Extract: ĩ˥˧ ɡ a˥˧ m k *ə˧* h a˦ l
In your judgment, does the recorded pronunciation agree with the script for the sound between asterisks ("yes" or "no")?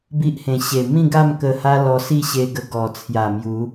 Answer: yes